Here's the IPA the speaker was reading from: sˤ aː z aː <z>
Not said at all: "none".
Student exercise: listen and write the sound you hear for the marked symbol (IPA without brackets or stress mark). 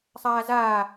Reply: none